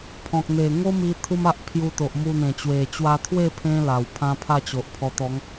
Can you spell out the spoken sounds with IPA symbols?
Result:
pʰɔ̃˨k̚n̪e˨˩ ŋo˦mi˧ t̪ʰu˦ma˦ʔpʰju˧t̪o˨ʔ mu˧n̪ẽ˨˩ t͡ɕwe˨˩t͡ɕwa˧t̪ʰwe˥˧ pʰẽ˦la˨˩w pʰã˦pʰa˥˧t͡ɕo˨ʔpʰɔ˧ t̪ɔ˨˦ŋ

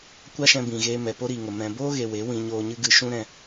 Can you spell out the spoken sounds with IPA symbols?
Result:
kʷa˦ʃɛ̃˧bĩ˨ɣeː˧ mɛ˨ po˦ɾiː˨ŋə˨ mɛ̃˨boː˦ɣe˨ we˨˦ wĩ˧ɲoː˧ɲɨ˦ ɡɨ˧ ʃũ˦ ɾɛ̃˧

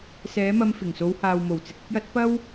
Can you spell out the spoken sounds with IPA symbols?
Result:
sɛː˨˥mɐ˧m fɪ˨˩ŋso˨˧whaː˨wmo˨˩w t͡sɪ˨k̚ɪ˧k̚jɐ˨˥t̚ pɐ˥w

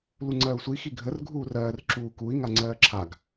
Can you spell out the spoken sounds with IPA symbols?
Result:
luŋ͡ǀɜːu̯sʷi xiɡʱər ɡʱuːrɜːr ǁuːkui̯ ŋaŋ͡ǀɜːǁʰaɡ

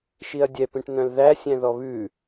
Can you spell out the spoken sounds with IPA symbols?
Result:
ʃiɐ̯dʲɛ pĩʈn̪œ̃lðæ sʲæ̃ðɔβʉ

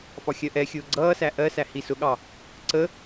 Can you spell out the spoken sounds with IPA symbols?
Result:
fɒxʲɜʔɛxʲʊː ɡ͡ǀʌːsæ ʔɜsæ hisʊɠɑ | ǀə

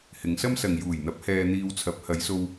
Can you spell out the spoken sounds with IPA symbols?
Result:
hɪ˨˧ŋsɐ˥msɐ˨ŋ juː˨˩jn̪ɐ˨˥p̚ hɛː˧n̪iː˧wt͡sʰɐ˨˥p̚ hɐ˨˧jso˧w

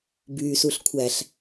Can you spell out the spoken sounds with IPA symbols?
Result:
byːsuɬkʷʰæɬ

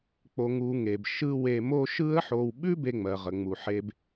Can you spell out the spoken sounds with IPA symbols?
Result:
k͡po˨ŋu˨ŋe˩b ʃɯ˦ we˨mo˦ ʃɯ˦ə̯ħo˨wɓʉ˥ be˦ŋ͡mɜ˩ ʁə˩ŋ͡mu˩ ħe˨b

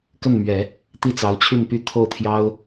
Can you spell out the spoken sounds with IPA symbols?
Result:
kə˥˩nmɥɛ˨˩˦ | t̪i˥˩t͡sɑ˧˥ʊ̯ t͡ɕʰy˥˧npy˥˧t̪ʰo˥˩ʊ̯t̪ʰjɑ˥ʊ̯

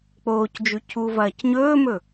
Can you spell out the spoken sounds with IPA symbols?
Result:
k͡poːcd͡ʒʉ cʰuvɐːc ɲɵːmɵ

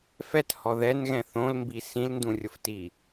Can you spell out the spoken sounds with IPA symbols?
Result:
fɛthɔ ðɛnɣɛ̃ θõlmbi sĩlndũrʲʊftiː

